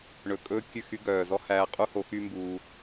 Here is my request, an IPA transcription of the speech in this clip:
ɳ ɵ˨ kʼ ɵː˧ kʲ ʉ˦˨ x y˦ ɡ œː˨ z ɔ˦ h æː˧ qʼ u˦ h o˧ x y˦ m b uː˧

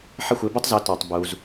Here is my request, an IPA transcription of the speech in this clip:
ħ ʌ˥˩ xʷ ɪː˩˥ b u˥ tˤ z ʊː˩˥ t ɔː˩ tˤ b uː˩ z

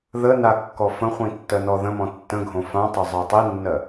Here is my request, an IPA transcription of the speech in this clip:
ð ə n a kː ɔ f ə̃ χʷ ĩ tː ɜ n ɔ ð ə̃ m ɔ̃ tː ə̃ ɡʱ õ f ã tˤ o zˤ ɜ tˤ i nː ɜ

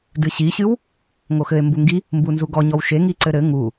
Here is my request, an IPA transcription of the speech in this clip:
d ɨ ɕ i ɕ ɨ w | ŋ o x ɘ e̯ m b u ŋ ɡ i | m b u n z u ɡ ɔ ɲ ɔ w ʃ e ŋ i ǀ ɘ ɾ ɘ ŋ u

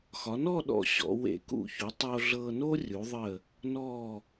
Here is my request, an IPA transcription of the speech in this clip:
x ɒ˩˧ n ɔ˥˧ ɗ ɔ̰˧˩ ɕ ɔ̰˩˧ w ḛ˧˩ k ṵ˧˩ ç u˩˧ tˤ oː˧ ɮ ɤː˧ n o˥ rʲ u˩˧ ðˤ ə˧˩ | n ɔː˧˩

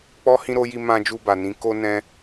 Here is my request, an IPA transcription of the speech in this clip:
k͡p ɔ˦ h ĩ˦ ɾ o˦ j i˧ m ã˧ d͡ʒ u˧ b a˨ n ĩ˨˦ k o˦ n ɛ̃˦

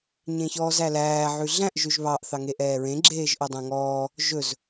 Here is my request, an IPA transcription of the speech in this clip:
ɲ ẽ ç ɔː z æ l æː ʕ ʉ ɮ æ̃ ʔ ʒ ʉ ʒ β ɑ ʔ θ ɑ ŋ e ʔ ɛː ɹ ẽ ɡ͡ǁ eː ʒ ʔ o dˤ ɛ̃ ŋ ɔː | ʒ ɵ z

